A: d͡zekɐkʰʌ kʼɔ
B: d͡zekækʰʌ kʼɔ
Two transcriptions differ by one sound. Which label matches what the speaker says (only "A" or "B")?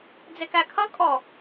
B